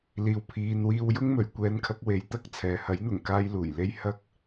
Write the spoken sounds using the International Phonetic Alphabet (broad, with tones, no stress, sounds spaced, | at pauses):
l iː˨ w pʰ iː˨ n w iː˧ w j ʊ˥ ŋ m ɵ˨ ɥ kʷ ɛː˨ n kʰ ɐ˨ k̚ w e˨˥ j t̪ ɐ˧ k̚ t͡sʰ ɛː˨ h ɐ˨˥ j n̪ ʊ˨˩ ŋ k aː˧ j l uː˨˩ j l e˧ j h ɐ˧ k̚